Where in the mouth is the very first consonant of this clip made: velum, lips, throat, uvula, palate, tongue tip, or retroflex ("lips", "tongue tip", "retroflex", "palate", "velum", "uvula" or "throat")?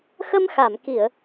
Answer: velum